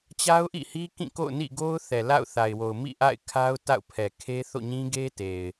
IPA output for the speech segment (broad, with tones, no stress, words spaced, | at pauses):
t͡ɕa˦ʊ̯ʔḭ˦˨hi˦ kĩ˦˨ko̰˦˨ʊ̯nḭ˦˨ɡo˦ʊ̯ θɛ˨la̰˦˨ʊ̯θa˨ɪ̯wo˨ʊ̯ mḭ˦˨ʔa̰˦˨ɪ̯kʰa˦ʊ̯ ta̰˦˨ʊ̯pʰɛ˨ kʰe˦θo̰˦˨ɲĩ˦ɡe˦ te˨ɪ̯